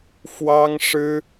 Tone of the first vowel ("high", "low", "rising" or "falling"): high